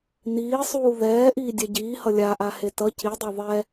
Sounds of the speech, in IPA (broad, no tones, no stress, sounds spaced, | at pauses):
n iː sˤ uː ð ɛː ʔ iː dʲ ɛ ɟ iː h ʌ lʲ a ʔ a h e t ʌ c i dˤ o ðˤ ɛ